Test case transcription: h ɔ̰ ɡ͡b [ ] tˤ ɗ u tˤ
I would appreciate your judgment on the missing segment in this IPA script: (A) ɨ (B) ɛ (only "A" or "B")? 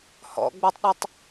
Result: B